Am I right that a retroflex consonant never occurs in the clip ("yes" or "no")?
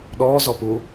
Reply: yes